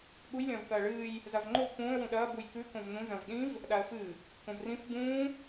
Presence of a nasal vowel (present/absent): present